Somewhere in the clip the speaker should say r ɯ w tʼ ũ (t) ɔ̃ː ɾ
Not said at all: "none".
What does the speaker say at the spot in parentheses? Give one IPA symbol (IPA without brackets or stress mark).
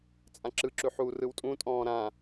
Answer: tʼ